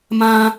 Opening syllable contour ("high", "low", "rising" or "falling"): high